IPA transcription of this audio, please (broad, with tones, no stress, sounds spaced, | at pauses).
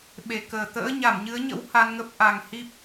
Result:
ɓ e˨˩ k əː˨˩ t̪ ə̰ː˧˥ ɲ a˧˩ m ɲ ɨ˨˦ ə̯ ɲ ə̰˧˥ w h a˧ n ŋ ə˦˥ p̚ ʔ a˨˩ ŋ h i˦˥ p̚